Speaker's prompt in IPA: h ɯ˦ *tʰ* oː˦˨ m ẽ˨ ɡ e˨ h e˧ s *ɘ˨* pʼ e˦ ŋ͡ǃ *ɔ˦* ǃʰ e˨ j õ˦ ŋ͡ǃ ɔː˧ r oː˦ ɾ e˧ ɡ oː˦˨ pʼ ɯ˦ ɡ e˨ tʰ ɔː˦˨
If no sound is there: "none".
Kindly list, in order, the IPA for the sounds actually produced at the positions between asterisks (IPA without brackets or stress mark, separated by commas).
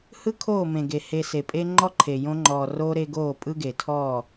kʰ, e˨, ɔ˦